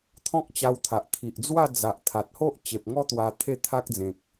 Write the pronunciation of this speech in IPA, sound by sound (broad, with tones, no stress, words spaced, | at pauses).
t̪ʰɔ̃˦k̚t͡ɕa˧wt̪ʰa˨ʔ t̪ʰi˨ʔd͡zwa˥˧ d͡za˨ʔt̪ʰa˨t̚ho˦ʔ t͡ɕe˨p̚ŋɔ˦t̪wa˧ t̪ʰe˥˧t̪ʰa˦k̚ d͡zẽ˨k̚